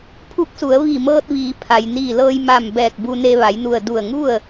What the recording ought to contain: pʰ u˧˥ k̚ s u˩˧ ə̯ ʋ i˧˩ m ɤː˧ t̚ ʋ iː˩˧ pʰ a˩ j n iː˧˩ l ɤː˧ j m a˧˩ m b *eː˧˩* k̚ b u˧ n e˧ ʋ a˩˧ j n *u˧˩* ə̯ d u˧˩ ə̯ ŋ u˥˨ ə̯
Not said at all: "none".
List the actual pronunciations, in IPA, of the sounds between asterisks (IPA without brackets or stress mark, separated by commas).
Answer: ɛː˧˩, u˧˩